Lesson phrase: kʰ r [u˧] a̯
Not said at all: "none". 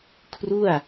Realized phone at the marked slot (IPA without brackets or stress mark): u˥˩